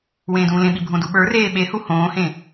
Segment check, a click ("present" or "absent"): absent